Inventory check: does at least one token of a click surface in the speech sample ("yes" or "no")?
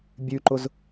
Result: yes